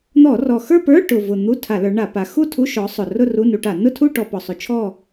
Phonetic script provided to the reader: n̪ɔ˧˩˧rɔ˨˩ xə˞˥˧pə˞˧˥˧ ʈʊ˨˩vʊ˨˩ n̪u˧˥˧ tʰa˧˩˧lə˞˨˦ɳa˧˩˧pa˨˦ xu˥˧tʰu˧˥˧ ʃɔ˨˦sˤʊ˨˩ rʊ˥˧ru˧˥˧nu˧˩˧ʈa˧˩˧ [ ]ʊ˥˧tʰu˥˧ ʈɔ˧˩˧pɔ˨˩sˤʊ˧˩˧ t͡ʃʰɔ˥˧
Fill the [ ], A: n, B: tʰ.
A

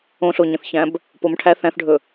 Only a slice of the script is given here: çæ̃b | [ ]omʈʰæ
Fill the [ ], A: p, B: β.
A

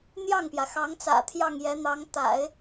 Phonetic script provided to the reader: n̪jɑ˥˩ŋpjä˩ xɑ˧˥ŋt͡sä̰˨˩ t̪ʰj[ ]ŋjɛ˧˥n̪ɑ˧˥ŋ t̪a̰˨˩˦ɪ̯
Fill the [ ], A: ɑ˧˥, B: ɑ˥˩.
B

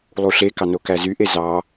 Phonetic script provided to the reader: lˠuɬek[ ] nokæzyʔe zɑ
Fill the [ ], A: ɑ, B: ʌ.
A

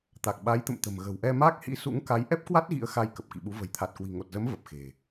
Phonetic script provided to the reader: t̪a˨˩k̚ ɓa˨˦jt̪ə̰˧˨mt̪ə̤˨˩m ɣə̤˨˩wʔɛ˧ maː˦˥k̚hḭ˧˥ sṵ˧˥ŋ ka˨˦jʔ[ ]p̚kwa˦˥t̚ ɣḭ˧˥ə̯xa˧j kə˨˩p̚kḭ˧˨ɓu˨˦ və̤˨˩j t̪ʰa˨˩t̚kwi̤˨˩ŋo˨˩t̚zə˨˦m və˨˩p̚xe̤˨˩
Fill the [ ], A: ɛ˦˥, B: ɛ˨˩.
A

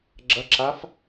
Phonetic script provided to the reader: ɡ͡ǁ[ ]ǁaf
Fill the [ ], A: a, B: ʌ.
B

